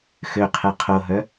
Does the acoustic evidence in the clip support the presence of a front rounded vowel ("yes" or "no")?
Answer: yes